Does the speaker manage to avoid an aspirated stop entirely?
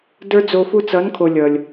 no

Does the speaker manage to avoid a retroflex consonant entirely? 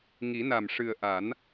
no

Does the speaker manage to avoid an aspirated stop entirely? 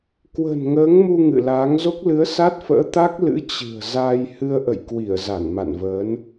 yes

